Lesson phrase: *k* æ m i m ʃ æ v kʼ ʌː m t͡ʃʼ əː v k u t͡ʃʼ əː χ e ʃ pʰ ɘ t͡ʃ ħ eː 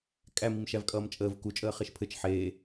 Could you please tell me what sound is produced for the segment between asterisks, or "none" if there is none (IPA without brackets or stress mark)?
kʼ